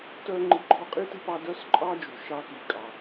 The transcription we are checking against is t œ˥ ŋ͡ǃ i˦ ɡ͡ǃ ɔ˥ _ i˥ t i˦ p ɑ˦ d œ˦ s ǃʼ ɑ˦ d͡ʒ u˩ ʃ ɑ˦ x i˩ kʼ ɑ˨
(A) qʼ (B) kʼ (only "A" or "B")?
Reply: A